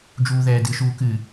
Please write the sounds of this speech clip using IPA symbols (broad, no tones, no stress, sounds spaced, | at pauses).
d͡ʒ uː ð ɛː d ɨ ʃ uː k ɨ